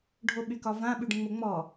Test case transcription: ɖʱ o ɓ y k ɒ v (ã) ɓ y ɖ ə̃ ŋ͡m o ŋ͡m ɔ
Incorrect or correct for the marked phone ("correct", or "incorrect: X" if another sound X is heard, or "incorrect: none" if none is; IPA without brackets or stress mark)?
correct